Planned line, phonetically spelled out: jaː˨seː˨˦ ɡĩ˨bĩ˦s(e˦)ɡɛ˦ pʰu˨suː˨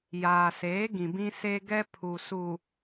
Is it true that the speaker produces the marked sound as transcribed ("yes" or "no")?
yes